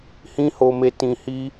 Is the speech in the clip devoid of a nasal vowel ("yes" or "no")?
no